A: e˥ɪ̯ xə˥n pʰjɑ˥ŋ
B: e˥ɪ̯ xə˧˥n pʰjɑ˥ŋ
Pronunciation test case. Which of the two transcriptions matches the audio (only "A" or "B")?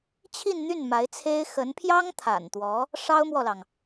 B